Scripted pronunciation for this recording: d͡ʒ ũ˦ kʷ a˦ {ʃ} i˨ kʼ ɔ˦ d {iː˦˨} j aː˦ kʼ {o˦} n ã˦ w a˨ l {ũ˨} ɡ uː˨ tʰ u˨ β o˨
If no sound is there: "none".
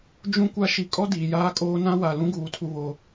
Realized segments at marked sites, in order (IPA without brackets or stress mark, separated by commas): ʃ, iː˨, oː˦, ũ˦